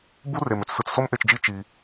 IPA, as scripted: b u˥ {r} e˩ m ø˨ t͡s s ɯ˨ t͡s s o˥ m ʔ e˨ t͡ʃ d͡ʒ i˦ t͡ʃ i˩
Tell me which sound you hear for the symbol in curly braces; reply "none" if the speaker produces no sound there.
r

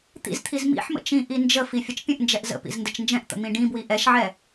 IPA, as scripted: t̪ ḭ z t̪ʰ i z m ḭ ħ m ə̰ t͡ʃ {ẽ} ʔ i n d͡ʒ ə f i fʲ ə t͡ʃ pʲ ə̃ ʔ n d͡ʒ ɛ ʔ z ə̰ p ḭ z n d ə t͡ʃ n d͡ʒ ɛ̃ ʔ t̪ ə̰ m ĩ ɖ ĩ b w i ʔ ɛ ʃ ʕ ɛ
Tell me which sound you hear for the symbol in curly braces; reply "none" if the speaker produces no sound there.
ĩ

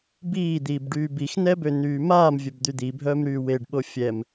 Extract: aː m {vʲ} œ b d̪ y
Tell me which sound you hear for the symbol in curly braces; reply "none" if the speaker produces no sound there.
vʲ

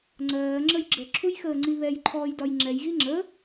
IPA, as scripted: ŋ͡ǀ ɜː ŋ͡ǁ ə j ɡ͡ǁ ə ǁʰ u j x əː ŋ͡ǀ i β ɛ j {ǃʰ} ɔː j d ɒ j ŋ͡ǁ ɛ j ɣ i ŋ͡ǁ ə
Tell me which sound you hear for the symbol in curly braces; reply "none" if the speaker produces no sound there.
ǃʰ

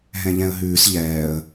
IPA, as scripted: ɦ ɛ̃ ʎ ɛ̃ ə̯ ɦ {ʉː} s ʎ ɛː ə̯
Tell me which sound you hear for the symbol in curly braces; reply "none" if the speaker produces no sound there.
ʉː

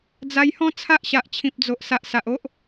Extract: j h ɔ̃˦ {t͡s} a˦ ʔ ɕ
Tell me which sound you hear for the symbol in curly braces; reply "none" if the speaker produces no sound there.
t͡sʰ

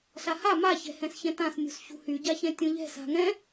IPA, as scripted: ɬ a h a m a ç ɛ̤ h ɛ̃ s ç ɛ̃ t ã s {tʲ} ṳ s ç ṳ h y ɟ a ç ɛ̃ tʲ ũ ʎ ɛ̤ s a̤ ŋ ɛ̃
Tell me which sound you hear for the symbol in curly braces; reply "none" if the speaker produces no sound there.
nʲ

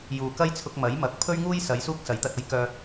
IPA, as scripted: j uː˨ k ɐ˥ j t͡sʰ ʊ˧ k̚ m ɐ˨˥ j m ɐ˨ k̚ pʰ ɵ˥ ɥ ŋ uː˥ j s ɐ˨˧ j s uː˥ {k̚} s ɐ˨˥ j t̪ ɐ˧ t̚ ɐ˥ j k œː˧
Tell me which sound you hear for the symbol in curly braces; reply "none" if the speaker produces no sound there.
k̚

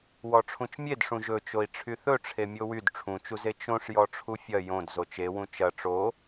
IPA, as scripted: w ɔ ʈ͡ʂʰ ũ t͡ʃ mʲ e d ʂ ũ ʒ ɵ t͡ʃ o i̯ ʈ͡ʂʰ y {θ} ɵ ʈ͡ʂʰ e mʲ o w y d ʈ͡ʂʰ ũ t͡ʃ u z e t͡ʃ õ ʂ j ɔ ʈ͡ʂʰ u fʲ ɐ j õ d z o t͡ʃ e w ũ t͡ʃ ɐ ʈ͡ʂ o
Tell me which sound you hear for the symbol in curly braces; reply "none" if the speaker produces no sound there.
θ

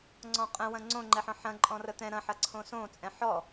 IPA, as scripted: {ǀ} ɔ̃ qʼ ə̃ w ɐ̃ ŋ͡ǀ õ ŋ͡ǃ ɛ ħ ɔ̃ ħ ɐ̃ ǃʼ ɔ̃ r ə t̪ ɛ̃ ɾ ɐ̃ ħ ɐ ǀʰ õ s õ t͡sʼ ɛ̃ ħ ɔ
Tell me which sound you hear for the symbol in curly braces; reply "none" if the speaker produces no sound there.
ŋ͡ǀ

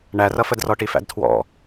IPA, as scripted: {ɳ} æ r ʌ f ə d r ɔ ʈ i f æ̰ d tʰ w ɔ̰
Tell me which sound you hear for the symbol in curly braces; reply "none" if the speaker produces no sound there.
ɳ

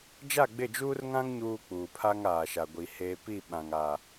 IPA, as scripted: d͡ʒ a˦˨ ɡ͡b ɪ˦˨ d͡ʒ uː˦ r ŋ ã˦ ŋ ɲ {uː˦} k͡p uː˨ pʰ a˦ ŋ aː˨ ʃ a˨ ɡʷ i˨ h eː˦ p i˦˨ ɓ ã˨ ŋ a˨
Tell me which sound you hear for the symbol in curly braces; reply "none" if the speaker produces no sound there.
uː˦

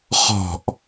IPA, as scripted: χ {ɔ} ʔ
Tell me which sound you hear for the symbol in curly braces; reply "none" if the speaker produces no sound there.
ɔ̤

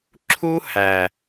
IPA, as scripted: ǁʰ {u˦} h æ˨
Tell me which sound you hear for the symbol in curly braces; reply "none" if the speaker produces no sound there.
u˦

